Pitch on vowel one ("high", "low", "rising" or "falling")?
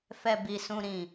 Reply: low